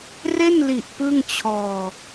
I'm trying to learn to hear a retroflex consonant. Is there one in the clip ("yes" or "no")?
no